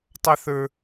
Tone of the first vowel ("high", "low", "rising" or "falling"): high